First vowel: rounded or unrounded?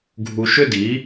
rounded